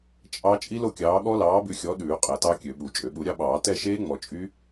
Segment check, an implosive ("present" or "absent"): present